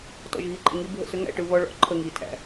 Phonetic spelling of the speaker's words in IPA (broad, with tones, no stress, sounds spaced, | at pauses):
t ɔ̰˨ ʒ ɣ i˨˦ ǃʼ ɪ˨ ŋ i˦ bʱ ə̰˦˨ s ʏ˦ ŋ æ̰˦˨ ʈ ɯ˨ β ɔ˦ ɭ ɔ̰˦ ǃʰ ə˦˨ ŋ i˨ tʰ æ̰˨